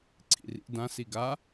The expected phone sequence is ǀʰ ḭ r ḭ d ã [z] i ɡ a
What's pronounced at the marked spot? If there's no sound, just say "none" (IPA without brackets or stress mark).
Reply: s